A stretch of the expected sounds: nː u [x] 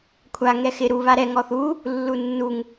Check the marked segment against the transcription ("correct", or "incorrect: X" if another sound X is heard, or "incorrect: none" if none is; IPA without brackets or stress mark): incorrect: ŋ